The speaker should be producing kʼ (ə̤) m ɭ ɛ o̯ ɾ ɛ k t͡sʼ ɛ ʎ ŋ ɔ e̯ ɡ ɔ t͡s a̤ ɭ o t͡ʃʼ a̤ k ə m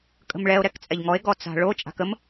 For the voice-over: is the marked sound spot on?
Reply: yes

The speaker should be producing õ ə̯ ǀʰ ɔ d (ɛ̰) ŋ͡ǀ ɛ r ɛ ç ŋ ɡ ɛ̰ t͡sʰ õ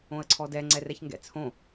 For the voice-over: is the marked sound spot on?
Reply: no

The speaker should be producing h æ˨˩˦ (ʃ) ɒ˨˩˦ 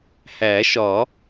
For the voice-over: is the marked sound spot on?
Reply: yes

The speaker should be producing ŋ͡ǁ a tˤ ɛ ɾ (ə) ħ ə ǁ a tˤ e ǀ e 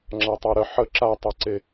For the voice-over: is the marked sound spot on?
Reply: yes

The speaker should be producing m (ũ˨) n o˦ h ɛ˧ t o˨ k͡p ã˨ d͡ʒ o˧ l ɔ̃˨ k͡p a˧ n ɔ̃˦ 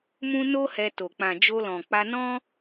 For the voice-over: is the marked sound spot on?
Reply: no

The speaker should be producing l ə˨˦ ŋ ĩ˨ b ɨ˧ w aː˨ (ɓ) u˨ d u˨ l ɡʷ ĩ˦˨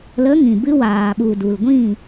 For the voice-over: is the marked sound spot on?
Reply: yes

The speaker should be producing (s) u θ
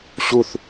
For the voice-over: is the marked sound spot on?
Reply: no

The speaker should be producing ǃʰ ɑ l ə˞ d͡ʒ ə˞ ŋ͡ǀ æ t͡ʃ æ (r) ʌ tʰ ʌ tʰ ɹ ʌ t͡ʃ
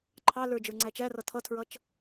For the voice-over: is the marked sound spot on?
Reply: yes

